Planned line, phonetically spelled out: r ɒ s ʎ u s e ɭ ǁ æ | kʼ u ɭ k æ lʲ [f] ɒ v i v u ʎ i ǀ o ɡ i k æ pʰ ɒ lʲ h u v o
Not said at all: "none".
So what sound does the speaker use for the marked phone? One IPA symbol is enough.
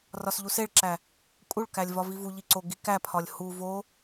v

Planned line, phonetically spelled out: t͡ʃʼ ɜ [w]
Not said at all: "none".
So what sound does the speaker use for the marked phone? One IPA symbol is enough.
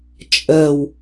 w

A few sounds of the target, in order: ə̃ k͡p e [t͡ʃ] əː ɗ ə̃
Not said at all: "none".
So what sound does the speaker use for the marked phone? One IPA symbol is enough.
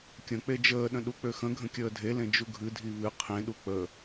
d͡ʒ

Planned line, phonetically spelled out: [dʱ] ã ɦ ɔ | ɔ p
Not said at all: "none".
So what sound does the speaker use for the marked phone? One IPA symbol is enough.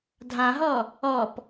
dʱ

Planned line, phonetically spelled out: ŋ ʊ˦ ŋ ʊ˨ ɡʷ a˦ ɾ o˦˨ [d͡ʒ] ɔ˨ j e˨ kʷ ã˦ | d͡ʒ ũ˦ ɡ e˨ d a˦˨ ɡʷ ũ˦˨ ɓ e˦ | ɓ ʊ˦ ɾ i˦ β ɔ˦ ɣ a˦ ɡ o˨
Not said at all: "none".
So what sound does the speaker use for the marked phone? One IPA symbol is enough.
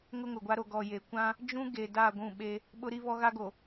ɡ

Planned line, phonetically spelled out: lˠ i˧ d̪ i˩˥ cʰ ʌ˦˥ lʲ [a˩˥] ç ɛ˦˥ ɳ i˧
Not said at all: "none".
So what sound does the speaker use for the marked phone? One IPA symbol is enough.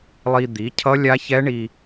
a˦˥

